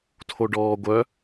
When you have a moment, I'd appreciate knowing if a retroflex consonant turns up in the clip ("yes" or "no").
yes